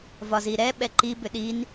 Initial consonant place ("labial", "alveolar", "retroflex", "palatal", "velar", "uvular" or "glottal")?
labial